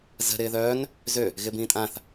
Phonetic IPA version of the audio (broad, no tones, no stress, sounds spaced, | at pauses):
z ə̤ ɾ ɪː ð œː n | z ø | ɣ ɪ b ĩː tʼ ã θ